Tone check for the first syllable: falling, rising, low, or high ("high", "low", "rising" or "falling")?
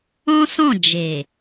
high